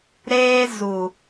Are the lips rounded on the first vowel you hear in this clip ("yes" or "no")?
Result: no